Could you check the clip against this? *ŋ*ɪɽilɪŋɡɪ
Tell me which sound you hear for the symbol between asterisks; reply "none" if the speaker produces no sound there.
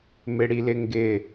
m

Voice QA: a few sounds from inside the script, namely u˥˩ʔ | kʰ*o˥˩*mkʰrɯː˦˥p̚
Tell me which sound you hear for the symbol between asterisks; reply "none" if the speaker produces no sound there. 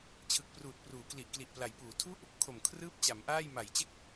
o˨˩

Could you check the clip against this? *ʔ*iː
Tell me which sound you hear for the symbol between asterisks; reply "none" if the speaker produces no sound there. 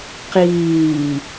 q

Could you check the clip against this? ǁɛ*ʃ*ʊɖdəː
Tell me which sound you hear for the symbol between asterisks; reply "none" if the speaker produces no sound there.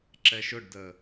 ʃ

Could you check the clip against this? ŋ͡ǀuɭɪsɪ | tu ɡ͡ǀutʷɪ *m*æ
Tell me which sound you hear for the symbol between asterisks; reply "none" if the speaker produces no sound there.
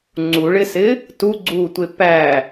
p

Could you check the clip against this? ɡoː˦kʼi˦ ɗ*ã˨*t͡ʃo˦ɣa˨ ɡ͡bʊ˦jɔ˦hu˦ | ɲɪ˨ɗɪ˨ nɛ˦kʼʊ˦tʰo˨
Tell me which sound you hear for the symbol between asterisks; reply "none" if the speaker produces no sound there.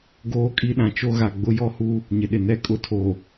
ã˨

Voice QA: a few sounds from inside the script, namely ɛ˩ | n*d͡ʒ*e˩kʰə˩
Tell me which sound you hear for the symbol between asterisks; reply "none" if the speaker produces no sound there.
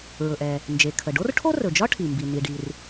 d͡ʒ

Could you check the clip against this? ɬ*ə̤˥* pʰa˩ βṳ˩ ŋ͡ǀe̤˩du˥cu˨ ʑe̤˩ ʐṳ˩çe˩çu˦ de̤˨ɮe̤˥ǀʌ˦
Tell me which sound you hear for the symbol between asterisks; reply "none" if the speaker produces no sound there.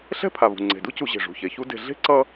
ɛ̤˥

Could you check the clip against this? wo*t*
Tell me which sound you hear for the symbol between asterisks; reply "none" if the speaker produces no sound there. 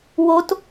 t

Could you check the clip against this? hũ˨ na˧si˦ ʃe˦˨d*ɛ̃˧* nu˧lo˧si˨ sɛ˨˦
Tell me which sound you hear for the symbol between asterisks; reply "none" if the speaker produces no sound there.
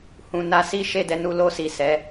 ɛ˧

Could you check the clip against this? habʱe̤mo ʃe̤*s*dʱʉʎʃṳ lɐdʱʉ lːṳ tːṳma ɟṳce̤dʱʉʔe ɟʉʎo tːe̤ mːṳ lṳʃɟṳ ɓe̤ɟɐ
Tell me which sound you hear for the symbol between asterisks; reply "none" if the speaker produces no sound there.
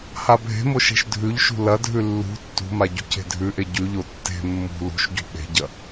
ʃ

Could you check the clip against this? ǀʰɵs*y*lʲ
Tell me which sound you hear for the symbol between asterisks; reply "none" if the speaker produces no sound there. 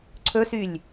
y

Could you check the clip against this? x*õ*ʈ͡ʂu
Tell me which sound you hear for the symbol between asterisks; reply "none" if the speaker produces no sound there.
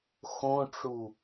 õ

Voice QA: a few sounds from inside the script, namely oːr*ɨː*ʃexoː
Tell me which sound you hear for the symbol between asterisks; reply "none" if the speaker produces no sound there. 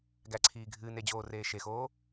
eː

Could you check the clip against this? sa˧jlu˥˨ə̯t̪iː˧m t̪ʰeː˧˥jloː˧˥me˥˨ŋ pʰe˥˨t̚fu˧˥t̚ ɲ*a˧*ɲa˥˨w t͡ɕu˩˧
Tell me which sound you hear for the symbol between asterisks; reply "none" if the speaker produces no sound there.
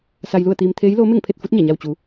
a˧˩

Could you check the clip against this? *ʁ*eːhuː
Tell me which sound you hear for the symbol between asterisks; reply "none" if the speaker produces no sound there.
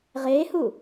ʁ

